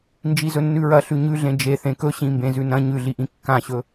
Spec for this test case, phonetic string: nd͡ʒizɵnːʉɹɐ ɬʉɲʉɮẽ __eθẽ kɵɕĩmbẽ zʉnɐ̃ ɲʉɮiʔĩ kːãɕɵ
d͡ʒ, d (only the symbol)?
d͡ʒ